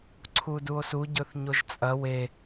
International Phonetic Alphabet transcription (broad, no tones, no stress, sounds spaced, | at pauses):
ǀʰ u d u o̯ s u ɟ ɵ θ ɲ o ʒ t͡sʼ ɐ w e